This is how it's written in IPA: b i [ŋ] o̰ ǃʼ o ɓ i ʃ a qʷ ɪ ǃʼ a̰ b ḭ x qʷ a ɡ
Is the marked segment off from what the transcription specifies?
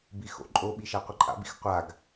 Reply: yes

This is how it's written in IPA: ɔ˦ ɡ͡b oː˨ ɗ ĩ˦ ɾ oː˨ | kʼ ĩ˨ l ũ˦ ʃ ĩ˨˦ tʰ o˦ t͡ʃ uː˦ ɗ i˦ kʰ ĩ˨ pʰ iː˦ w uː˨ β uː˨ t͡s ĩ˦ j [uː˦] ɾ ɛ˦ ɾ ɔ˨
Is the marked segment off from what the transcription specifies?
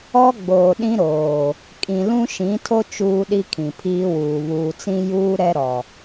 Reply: no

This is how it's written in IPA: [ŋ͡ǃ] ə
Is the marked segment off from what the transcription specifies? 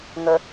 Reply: yes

